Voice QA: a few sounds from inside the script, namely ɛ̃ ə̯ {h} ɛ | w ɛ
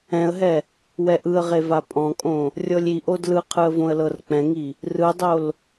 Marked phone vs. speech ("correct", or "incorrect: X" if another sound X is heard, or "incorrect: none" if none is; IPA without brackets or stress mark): incorrect: ɦ